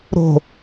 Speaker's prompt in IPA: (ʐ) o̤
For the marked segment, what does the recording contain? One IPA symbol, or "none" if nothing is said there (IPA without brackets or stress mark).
ɾ